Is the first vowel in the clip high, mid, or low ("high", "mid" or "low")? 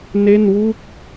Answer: mid